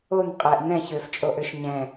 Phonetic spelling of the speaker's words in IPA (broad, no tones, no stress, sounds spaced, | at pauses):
o n qʼ ɛ ʔ n ɛ̃ ç ø f t͡ʃʼ o ʔ ø ʃ ɲ ɛ̃